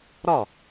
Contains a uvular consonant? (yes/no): no